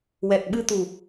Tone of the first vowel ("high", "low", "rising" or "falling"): low